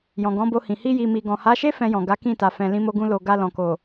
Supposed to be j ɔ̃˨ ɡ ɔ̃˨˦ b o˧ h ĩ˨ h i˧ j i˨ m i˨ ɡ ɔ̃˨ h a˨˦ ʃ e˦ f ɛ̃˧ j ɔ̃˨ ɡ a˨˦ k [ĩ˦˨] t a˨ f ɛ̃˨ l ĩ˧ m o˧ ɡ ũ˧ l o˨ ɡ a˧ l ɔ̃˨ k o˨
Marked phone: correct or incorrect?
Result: correct